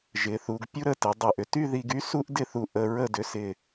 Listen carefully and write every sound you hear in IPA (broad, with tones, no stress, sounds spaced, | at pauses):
ʒ ɪ˩˧ θ u˩˧ ɡ pʲ u˥ ɾ ə˥˧ t ɪ˩˧ dˤ y˧˩ ʔ ʏ˧ t y˥˧ ð i˧ ɡ y˥ s u˥ ʔ d ɪ˥˧ θ u˧˩ ʔ ə˧ ɹ ə˥˧ d ʏ˧ s ɪ˧˩